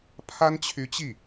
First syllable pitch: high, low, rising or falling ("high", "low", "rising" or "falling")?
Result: high